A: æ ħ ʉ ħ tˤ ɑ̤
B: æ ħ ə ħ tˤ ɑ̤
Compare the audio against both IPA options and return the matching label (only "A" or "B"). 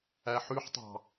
A